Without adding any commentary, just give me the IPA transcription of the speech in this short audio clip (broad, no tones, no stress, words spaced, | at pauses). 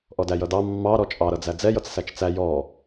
ʔɔdæjʌdɑ mːɑɾɔ t͡ʃʼɑɾʌd͡zæ d͡zɛjʌt͡ssæt͡ʃ t͡sæ jɔ